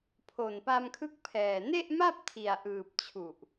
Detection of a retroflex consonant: absent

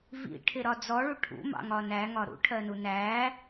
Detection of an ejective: absent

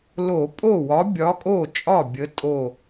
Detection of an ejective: present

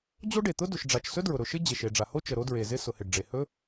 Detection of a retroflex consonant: present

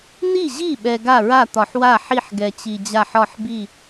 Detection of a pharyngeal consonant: present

